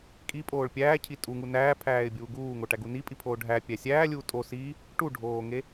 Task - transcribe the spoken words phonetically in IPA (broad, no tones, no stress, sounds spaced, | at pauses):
kʼ i pʼ oː ɭ pʲ æː cʰ i tʼ u ŋ u n æː pʰ æː ɪ̯ bʲ uː ɡ uː ŋ o ʈ æ ɡ u n i pʼ i pʰ oː ɖʱ æ pʲ æ sʲ æː lʲ uː tʼ o s i | ʈ u ɖʱ oː ŋ e